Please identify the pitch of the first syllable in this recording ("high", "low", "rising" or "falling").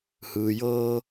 low